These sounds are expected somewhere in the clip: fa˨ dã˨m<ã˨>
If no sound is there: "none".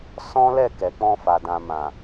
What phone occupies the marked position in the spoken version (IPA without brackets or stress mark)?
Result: ã˨